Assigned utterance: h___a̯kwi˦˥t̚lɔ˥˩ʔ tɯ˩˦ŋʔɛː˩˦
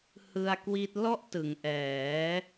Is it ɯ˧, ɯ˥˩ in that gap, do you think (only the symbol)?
ɯ˧